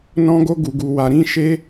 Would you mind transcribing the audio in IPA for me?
n ɔ̃˦ ɡ o˦ ɡ u˧ ɡ u˧ w a˧ ɾ ĩ˦ ʃ e˦

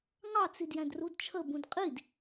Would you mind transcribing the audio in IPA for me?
ŋ ɑ t͡s i d j æ̃ d r u d t͡ʃʰ ə b ũ d qʼ i d

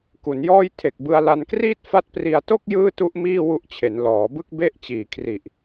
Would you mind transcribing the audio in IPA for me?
k u˩˦ n j ɔː˥˩ j tʰ e˨˩ k̚ b ɯ˧ a̯ l a˧ n k r iː˥˩ t̚ f a˦˥ t̚ p r i˧ a̯ t o˥˩ k̚ j ɯː˥˩ t u˦˥ ʔ m iː˥˩ w u˦˥ ʔ t͡ɕʰ e˩˦ n l ɔː˩˦ b ɯ˥˩ k̚ b e˥˩ ʔ t͡ɕ iː˨˩ kʰ r i˨˩ ʔ

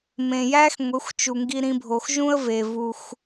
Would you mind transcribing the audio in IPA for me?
m ẽ˨ j æ˦ x ŋʷ e˨˦ xʷ t͡ʃ u˨ ŋ ɡ i˧ ɾ ĩ˧ bʱ o˨ x ʒ ũ˦ ə̯ v e˨ v u˧ x

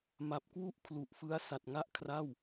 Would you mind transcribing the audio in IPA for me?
m a˨˩ p̚ k w u˥˩ ʔ kʰ l u˨˩ ʔ f ɯ˦˥ a̯ s a˨˩ t̚ ŋ a˥˩ ʔ kʰ r a˥˩ w

